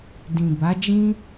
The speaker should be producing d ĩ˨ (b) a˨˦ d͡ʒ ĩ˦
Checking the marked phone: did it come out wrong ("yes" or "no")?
no